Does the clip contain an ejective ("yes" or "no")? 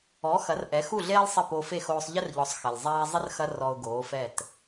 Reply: no